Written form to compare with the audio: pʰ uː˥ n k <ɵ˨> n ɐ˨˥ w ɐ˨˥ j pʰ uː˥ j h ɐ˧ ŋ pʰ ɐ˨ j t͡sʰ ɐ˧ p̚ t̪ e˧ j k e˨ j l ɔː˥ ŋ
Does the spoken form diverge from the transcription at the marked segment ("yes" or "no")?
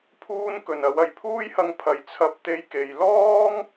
no